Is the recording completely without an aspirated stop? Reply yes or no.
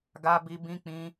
yes